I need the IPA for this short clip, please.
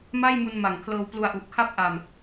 m a˥˩ j m u˧ n m a˨˩ ŋ kʰ l ɤː˧ w p l u˧ a̯ ʔ u˨˩ ʔ kʰ a˥˩ p̚ ʔ a˧ m

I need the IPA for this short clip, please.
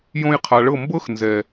j õ˧ j qʰ a˨ ɭ ɤ˦˨ m b ɤ˦ x n z ɛ˨

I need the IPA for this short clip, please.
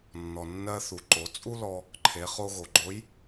nː ɔ˩ nː ɜ˧ θ u˩ ǃ o˩˧ t͡sʼ u˥ l ɔ˧ | ǃʰ e˩˧ χ o˧ ɣ o˩ ɡ͡ǃ o˧˥ j

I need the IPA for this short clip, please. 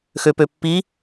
x ø p ø pː i

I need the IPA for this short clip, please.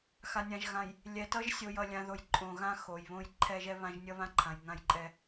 x a˨ nʲ ã˨ ʒ ɣ ã˨ j | lʲ ɛ˨ t ʌ˦ ʒ sʲ o˨ j ʌ˨ lʲ ã˨ ð o˨ j ǃʼ õ˨ ɣ ã˦ x o˨ j β õ˦ j ǃʰ ɛ˦ ʒ ɛ˦ β ã˦ ʒ nʲ ʌ˦ β ã˦ ǃʰ ã˨ j ŋ ã˦ j ǃʼ ɛ˦

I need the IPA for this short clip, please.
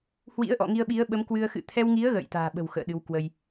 h w ḭ˧˥ ə̯ ʔ ɔ̰˧˨ ŋ i˧ ə̯ ɓ i˨˦ ə̯ ɓ ə˨˦ m k w ɨ˧ ə̯ x ɨ̰˧˨ t̪ʰ ɛ˧ w ŋ i˨˦ ə̯ ɣ ə̰ː˧˨ j t̪ a̤ː˨˩ ɓ ə̤˨˩ w x ə̰ː˧˨ ɗ ɨ˨˦ w k w ə˧ j

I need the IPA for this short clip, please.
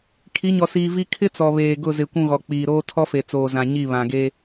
kʰ i˨˦ ɲ ɔ˨ s iː˨ v i˦ kʰ ɪ˦ t͡s ɔ˨ β eː˨ ɡ ʊ˦˨ z ɪ˨ kʷ ũ˦˨ ɣ ɔ˨ k͡p iː˨ ɾ oː˦ tʰ ɔ˦ f e˨ t͡s oː˨ z ã˨ ɲ i˦˨ β ã˨ ɡ e˦

